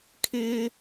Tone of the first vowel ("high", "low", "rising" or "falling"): high